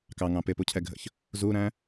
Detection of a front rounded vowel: absent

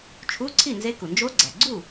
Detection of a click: present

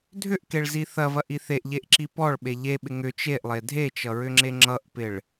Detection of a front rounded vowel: present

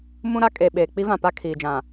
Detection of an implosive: present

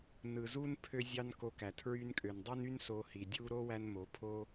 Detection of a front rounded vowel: present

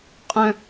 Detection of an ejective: present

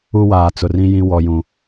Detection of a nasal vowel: present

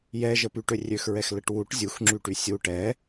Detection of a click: present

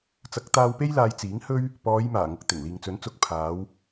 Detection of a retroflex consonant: absent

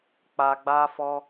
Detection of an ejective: absent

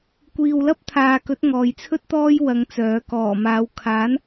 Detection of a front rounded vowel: present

